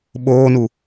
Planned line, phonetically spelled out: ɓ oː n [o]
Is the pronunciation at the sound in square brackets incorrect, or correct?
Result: incorrect